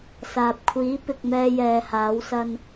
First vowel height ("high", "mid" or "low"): low